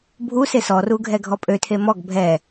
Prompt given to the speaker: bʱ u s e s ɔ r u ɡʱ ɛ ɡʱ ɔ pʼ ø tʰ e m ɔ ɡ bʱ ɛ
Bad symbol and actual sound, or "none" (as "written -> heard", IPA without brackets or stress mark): none